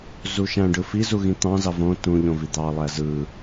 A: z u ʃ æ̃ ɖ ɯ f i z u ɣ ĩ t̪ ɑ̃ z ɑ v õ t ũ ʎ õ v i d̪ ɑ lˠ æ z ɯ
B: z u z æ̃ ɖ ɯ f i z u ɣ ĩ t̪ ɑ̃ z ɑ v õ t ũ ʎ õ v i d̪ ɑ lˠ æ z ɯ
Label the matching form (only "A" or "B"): A